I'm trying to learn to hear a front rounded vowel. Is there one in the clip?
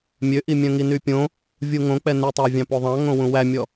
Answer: yes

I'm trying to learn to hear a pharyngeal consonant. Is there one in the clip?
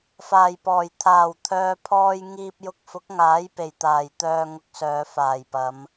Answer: no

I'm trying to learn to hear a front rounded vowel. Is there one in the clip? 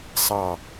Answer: no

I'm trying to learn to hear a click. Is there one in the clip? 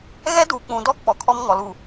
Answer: no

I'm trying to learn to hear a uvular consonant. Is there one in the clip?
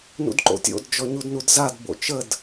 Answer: no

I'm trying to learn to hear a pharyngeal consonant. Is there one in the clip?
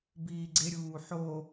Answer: yes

